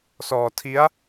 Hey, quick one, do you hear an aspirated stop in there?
yes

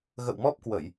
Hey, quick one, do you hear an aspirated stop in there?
no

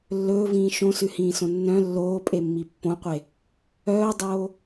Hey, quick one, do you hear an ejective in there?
yes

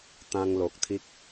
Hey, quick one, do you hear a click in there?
no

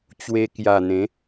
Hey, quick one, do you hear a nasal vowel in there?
yes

